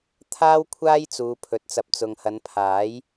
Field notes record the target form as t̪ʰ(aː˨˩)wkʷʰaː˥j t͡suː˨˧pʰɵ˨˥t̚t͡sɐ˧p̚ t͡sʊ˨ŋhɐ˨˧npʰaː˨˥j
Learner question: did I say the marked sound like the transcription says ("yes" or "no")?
no